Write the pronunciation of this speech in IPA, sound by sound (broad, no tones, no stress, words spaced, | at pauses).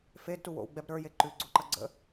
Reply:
fedtu wo̰w ɡ͡bɛb ɾə˞je ǃʉɡ͡ǀoǃɐ ɡ͡ǀə̰